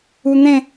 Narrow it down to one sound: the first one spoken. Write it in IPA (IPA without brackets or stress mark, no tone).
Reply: u